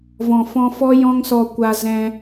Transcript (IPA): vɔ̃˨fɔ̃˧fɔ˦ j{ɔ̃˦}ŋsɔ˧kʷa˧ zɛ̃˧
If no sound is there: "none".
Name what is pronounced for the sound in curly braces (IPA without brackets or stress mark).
ɔ̃˦